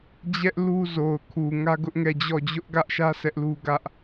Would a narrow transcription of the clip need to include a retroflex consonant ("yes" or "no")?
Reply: no